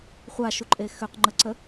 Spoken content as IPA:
χʷaʃuǃʼe xøqŋ͡ǃəǀə

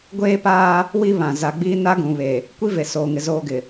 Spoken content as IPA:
ɡʷeː˦paː˦ | wi˦ βã˨ za˨ɡ͡biː˦ na˦ɡũ˨βe˨ | kʷi˦ve˨soː˨ŋɪ˨ zoː˦ɡɪ˨

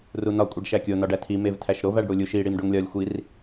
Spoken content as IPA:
runɒ kʷʼeɖʃækʲo nɒɖætʰi mevtʰæʃɾov æɖɽulʲuʃ i ɽimɖoŋlʲɒlʲ xʷir

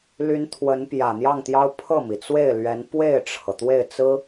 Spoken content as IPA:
ly˧˥n t̪ʰwə˧˥npjä˨˩n̪jɑ˥˩ŋt̪jɑ˥ʊ̯ pʰɤ˥˩mi˩t͡swe˥˩ɪ̯ lɥɛ˧˥n pwe˥˩ɪ̯ʈ͡ʂʰɤ˩ t̪we˥˩ɪ̯t͡sɹ̩˥

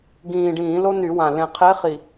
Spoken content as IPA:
ɡĩː˨˩ɖĩː˧˩˧ lo˥ny˧˩˧wã˨˩ lẽ˨˩qʰe˧˥χi˨˩

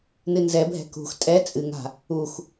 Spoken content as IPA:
nɨnzɛbʱɛ̤ kṳx tʼɛ t͡sʼɨŋa̤ | ux

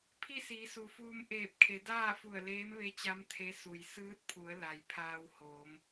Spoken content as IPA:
pʰi˥˨siː˩˧su˩fuː˧m ʔeː˧˩p̚kʰe˩˧daː˥˨fu˧˩ə̯ leː˧˥mʋe˧˥t͡ɕa˧˥m t̪ʰe˧˥su˩j sɯː˧˥t̚pʰu˩˧ə̯ la˩j pʰaː˧whoː˩˧m

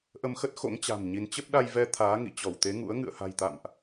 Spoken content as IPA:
ʔə˧mxə˦˥t̚xo̰˧˥ŋt͡ɕa̤˨˩m ɲi˨˦n t͡ɕə˦˥p̚ɗa˧jvɛ˧ t̪ʰaː˨˦ŋḭ˧˨ t͡ɕɔ˧˩wt̪e˨˦ŋṵ˧˥ə̯ ŋɨ̰˧˨ə̯ha̤˨˩jt̪a̰˧˨mʔ

